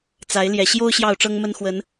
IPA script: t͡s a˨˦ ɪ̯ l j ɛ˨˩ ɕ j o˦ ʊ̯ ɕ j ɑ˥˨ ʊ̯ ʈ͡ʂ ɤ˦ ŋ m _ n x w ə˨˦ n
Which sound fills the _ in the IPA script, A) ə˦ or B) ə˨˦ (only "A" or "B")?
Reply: A